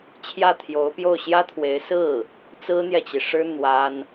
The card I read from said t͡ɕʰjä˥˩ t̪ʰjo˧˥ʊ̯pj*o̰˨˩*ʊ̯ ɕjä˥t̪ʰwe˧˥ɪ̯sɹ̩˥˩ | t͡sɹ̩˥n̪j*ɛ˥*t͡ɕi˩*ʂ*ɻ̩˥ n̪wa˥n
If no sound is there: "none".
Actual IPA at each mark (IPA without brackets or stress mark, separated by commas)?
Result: o˥˩, ɛ˨, ʂ